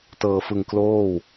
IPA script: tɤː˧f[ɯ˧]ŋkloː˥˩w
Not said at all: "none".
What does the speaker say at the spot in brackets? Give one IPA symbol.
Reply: ɯ˧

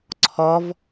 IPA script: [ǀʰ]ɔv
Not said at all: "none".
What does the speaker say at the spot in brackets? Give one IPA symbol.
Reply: ǀʰ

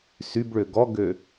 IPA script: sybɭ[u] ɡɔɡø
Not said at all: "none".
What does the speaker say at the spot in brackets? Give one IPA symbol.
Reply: ø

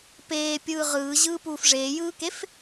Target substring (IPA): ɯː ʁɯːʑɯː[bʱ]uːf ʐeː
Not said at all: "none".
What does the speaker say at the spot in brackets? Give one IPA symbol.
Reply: p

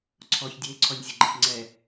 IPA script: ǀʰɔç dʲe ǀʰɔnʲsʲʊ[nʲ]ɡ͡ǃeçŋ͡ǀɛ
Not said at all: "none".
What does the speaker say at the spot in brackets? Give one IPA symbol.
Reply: none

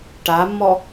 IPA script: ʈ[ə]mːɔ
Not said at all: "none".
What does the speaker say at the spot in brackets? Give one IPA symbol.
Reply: a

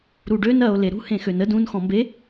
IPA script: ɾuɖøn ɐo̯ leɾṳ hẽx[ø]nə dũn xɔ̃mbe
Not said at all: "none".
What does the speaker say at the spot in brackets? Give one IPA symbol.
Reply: ø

